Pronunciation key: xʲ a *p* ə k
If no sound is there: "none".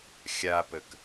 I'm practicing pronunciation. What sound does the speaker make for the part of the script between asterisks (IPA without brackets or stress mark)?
p